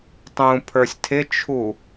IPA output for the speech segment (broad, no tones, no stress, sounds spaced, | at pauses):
tˤ ũ pʰ ə˞ sʲ tʰ ɪ t͡ʃʰ u